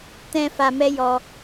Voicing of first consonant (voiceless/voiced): voiceless